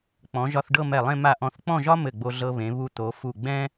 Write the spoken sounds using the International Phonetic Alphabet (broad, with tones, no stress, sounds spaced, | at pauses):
k͡p ɔ̃˩˧ ʒ ɒ˧ θ ɖ ɤ˥˧ m ɛ˧˩ lˠ ẽ˥˧ m a˧˩ ʔ ɔ̃˧˩ θ k͡p ɔ̃˥˧ ʒ ɒ˥ m ɘ˧˩ ɡ͡b o˧ ɮ ɤ˧ β ẽ˩˧ β u˧ t̪ o˩˧ f u˧˩ ɡ͡b ɛ̃˥